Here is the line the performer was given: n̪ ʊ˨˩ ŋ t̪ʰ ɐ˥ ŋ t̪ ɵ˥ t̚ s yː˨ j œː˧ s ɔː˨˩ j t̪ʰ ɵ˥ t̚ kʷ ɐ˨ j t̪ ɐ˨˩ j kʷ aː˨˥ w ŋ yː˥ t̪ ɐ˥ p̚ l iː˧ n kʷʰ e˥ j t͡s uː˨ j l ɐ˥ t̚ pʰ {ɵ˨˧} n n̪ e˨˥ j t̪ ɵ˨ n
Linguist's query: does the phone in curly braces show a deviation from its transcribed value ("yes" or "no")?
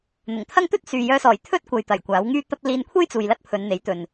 no